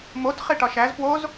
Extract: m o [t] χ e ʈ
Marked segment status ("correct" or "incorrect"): correct